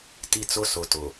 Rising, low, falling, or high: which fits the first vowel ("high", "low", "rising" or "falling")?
high